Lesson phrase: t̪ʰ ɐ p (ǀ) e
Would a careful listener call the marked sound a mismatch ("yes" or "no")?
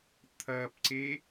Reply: no